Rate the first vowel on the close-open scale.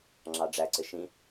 open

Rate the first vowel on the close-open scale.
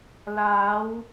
open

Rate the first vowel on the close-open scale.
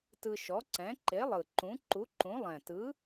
close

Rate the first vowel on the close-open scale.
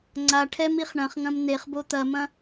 open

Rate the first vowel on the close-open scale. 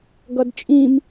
mid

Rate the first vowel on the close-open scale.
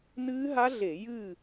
close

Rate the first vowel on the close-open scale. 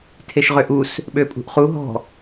mid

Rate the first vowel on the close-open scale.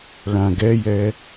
open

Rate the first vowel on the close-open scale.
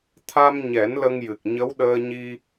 open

